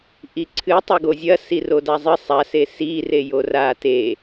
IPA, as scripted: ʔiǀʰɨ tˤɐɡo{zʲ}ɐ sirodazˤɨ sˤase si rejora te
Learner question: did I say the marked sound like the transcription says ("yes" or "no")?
yes